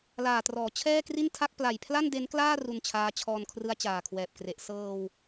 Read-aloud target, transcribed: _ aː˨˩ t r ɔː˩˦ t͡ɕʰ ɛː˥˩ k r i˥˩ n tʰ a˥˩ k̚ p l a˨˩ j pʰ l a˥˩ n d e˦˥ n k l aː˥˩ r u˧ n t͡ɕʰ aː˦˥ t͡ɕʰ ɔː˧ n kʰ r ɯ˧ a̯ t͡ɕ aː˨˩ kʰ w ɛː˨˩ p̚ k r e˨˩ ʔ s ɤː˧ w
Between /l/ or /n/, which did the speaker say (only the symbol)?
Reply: l